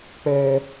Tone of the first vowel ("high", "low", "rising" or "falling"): high